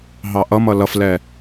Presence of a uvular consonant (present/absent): absent